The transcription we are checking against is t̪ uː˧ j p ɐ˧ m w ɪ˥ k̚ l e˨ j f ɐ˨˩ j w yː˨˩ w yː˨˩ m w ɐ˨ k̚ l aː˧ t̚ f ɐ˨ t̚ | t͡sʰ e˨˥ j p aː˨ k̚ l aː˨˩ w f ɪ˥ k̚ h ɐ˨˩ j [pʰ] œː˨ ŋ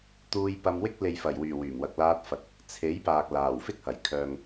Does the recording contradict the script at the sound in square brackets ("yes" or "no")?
yes